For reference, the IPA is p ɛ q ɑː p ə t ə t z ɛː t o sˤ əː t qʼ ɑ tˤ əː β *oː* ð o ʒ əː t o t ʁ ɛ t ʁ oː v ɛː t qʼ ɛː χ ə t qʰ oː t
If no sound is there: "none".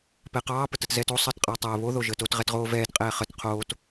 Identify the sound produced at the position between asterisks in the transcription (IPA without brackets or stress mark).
o